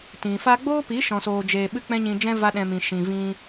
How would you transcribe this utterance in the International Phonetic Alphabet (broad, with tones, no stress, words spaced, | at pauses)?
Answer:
tĩ˨fa˦ ɡ͡boː˦pi˨˦ ʃɔ̃˧soː˧d͡ʒeː˧ ɓɨ˦k͡pɛ̃˦ɲĩ˧d͡ʒɛ̃˦ va˦ɗɛ̃˧ mĩ˨ ʃĩ˨vĩ˧